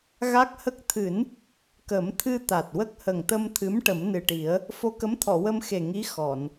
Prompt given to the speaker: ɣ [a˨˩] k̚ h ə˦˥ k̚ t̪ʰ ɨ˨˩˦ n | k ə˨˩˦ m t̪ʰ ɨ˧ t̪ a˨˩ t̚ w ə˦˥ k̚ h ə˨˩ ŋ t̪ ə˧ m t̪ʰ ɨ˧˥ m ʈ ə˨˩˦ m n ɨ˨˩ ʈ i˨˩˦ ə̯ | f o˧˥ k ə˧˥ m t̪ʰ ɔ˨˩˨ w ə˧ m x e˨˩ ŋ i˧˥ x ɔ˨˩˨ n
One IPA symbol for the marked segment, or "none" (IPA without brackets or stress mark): a˦˥